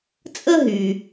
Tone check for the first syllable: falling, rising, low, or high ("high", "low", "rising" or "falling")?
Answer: high